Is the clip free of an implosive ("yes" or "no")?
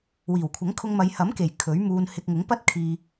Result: yes